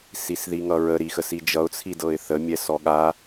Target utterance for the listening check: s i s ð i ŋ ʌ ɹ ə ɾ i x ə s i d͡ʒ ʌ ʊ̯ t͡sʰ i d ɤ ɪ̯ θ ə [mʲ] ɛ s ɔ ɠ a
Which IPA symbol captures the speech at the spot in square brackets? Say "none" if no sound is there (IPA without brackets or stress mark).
mʲ